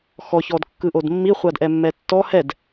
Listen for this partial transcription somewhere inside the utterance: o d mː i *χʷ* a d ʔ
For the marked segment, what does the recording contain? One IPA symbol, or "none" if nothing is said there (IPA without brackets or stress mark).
χʷ